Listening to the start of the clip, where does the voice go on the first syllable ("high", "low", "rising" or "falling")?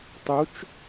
rising